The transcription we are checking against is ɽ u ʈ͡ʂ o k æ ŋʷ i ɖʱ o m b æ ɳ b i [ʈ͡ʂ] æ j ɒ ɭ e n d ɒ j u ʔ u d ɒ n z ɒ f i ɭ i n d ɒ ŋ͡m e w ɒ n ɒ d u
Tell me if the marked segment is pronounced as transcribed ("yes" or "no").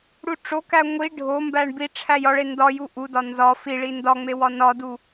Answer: no